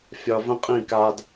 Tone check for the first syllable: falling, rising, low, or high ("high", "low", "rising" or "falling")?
low